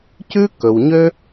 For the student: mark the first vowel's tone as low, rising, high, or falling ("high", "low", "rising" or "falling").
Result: high